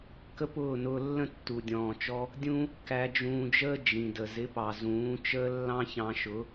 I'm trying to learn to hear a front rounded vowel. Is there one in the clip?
no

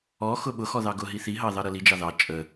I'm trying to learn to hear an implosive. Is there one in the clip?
yes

